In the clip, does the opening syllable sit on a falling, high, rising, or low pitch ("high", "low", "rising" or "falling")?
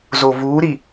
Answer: low